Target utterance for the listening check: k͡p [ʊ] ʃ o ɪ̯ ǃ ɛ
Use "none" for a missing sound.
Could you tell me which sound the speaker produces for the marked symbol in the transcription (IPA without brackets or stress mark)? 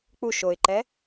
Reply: u